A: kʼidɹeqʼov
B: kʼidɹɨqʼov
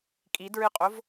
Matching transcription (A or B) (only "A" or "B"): B